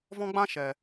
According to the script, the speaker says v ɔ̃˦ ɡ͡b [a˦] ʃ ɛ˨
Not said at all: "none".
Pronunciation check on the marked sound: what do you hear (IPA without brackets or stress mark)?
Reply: ã˦